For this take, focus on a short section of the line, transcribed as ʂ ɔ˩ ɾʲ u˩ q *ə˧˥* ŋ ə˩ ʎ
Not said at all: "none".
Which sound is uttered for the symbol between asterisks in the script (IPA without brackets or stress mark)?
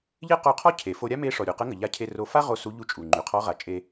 ə˧˥